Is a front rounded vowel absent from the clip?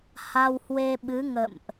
yes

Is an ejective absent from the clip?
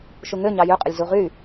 no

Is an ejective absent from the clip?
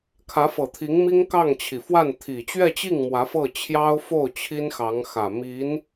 yes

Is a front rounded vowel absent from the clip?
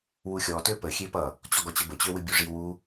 no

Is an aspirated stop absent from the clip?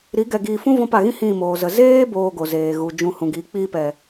yes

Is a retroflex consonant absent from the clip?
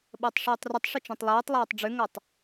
no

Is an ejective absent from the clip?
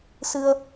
yes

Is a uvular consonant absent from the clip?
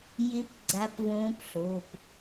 yes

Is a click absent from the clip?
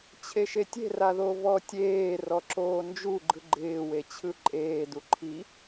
no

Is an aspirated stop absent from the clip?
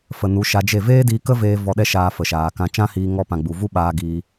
yes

